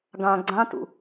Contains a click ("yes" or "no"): yes